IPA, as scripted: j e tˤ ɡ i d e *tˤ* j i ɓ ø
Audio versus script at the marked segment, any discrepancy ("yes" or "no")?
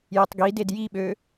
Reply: yes